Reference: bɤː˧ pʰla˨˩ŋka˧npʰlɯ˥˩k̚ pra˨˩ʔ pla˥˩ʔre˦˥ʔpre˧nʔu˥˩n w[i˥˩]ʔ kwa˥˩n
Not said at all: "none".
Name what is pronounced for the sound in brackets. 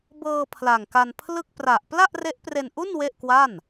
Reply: e˥˩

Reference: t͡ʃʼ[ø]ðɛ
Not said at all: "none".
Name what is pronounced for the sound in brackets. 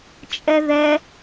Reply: ɛ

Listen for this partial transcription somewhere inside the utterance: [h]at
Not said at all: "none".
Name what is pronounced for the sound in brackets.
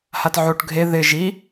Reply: h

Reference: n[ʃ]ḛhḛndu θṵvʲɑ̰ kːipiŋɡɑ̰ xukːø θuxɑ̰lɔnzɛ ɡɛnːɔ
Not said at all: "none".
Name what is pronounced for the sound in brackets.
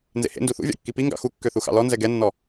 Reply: z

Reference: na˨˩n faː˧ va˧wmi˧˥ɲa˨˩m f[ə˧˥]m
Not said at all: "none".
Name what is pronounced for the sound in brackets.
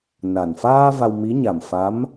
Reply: a˧˥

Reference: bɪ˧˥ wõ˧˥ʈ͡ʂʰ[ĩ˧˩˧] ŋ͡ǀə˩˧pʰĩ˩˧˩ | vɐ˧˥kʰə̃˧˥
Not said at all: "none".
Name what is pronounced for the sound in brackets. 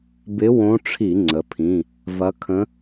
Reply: i˧˩˧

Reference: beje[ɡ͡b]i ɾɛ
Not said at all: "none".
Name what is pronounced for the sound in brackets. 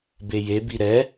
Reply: b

